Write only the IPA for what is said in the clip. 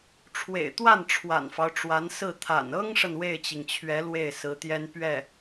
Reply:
ʈ͡ʂʰ w ḛ˨˩ ɪ̯ t̪ w a˥˩ n ʈ͡ʂʰ w a̰˨˩ n f ɑ˦ ʊ̯ ʈ͡ʂ w a˧˥ n s ɹ̩˥˩ t̪ʰ a̰˨˩ n ɤ˥ ŋ ʂ ə˨ n w e˥˩ ɪ̯ t͡ɕ i˩ ŋ t͡ɕʰ ɥ ɛ˧˥ l w e˥˩ ɪ̯ s ɹ̩˧˥ t̪ j ɛ˥ n p ɥ ɛ˥˩

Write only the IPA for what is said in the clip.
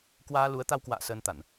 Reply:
k w aː˧ l u˨˦ ə̯ t̪ a˧ w k w a̰ː˧˨ s əː˧ n t̪ a˧˩˨ n

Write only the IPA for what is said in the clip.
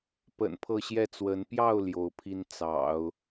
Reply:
p ə̰˨˩ n pʰ ɤ˥˧ ɕ j ɛ˥˩ t͡s w ə˧˥ n p j ɑ˥˩ ʊ̯ l j o˧˥ ʊ̯ pʰ i˥ n t͡s ɑ̰˨˩˦ ʊ̯

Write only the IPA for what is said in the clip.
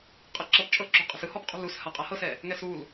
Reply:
qʼ ɛ ǁ ɤ p t͡ʃʼ ɤ ǁ ṳ qʼ ɛ̤ s ɯ h ɔ p qʼ ṳ l u s h a qʼ a h ɤ s ɛ | ŋ ɛ s u l

